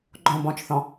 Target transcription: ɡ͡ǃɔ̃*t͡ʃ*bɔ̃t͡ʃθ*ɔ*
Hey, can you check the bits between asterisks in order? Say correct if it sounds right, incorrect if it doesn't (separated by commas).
incorrect, incorrect